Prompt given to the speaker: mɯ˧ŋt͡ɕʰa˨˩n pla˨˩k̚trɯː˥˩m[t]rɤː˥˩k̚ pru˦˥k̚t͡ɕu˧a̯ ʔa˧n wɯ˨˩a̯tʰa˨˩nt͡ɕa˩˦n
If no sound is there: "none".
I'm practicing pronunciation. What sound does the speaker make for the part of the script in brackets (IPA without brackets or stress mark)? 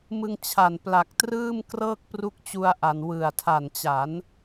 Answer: k